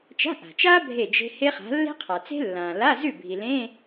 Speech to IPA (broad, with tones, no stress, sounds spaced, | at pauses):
t͡ʃ a̤˧˥˧ ʔ a̤˩ t͡ʃ a˥ bʱ e˥˩ d͡ʒ e̤˥ h e˥ χ a̤˨˥ lː e̤˥ qʰ a˩ t͡s e̤˥ lː ã˩ l a˧˥˧ z ʉ˥˩ bʱ i˩ l ẽ˧˥˧